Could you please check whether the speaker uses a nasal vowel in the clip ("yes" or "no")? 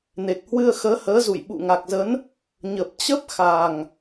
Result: no